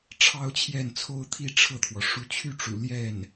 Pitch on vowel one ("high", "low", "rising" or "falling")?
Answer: high